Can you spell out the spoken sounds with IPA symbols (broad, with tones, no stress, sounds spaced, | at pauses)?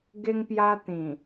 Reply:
ɡ e˧ ŋ p j a˧ t̪ ĩ˨˩